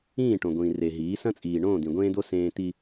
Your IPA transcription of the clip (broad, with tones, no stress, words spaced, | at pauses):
ĩː˦˨ʈõ˨ ɡʷĩː˨re˨ ɦiː˨˦sɐ̃˦t͡sʼiː˨ ɳõː˦˨d̪ĩ˨ɡʷẽː˦d̪o˦ sẽː˦ t̪i˦